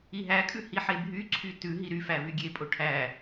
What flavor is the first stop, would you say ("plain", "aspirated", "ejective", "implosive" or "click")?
ejective